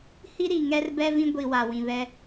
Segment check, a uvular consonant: absent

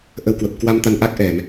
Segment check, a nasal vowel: absent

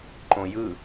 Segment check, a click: present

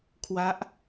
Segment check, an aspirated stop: present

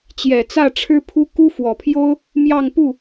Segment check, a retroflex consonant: present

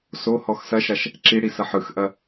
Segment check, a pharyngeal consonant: present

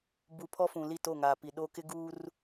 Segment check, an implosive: present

